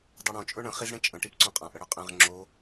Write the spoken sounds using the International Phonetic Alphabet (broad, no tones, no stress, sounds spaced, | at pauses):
dˤ ɛ ɽ õ t͡ʃʼ ɵ ɳ ə̃ χ i z ɽ ẽ t͡ʃʼ ə̃ ʈ i p ǀ õ qʼ ã ʔ ə ɽ ɵ qʼ ɛ̃ ʁ ŋ͡ǁ o